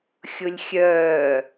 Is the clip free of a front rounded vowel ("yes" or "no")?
no